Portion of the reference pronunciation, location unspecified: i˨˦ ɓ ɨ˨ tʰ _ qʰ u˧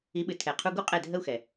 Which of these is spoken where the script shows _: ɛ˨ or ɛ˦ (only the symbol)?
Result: ɛ˨